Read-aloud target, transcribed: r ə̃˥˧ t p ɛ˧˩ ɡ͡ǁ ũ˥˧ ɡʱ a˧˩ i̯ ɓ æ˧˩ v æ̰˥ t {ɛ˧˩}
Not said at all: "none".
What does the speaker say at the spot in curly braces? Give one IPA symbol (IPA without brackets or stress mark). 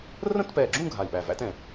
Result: ɛ̃˧˩